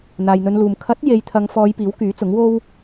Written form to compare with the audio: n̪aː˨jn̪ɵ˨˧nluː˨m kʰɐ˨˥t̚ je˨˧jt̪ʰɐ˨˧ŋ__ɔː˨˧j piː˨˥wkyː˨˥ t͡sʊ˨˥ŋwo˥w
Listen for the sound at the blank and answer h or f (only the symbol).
f